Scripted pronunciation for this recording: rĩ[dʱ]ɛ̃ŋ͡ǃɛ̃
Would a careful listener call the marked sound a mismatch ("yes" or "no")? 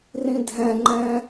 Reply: no